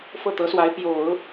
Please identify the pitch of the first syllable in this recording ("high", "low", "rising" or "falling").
falling